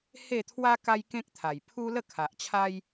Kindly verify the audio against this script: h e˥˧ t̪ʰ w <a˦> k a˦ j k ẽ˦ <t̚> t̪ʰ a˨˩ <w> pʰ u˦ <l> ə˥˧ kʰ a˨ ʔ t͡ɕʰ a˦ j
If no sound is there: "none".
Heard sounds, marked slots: a˦, k̚, j, l

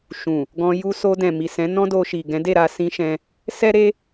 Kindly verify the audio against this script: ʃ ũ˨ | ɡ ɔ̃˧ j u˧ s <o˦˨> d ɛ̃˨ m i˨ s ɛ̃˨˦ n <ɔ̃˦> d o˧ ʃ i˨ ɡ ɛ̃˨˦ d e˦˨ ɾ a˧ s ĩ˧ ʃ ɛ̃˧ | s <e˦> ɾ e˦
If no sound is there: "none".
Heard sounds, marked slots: o˧, ɔ̃˦, ɛ˦

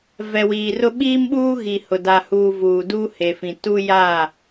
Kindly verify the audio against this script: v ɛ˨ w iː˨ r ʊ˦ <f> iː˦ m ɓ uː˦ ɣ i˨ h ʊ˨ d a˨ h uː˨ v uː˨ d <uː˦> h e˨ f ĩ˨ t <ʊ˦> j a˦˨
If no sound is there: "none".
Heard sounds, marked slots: ɓ, uː˦, u˦

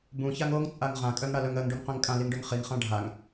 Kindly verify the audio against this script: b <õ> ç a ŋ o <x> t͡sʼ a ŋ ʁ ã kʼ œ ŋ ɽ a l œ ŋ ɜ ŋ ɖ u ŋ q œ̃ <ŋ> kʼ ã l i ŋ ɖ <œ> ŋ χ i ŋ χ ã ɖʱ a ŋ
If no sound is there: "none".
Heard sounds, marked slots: ũ, ŋ, ŋ, œ

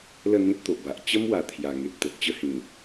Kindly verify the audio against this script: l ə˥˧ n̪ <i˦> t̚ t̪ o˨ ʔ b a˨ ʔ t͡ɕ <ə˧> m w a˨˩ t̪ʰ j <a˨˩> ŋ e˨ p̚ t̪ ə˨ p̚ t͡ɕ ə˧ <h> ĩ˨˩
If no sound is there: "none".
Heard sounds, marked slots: ĩ˦, ə˦, a˨˩, h

